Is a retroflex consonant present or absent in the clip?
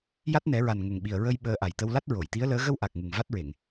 absent